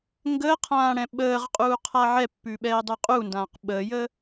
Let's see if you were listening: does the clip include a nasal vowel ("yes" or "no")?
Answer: yes